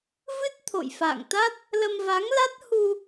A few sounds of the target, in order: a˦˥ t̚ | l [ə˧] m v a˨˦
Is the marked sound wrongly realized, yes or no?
no